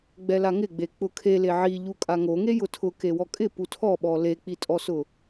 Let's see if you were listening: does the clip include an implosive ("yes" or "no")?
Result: yes